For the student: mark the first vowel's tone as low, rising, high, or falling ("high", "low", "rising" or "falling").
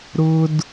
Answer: high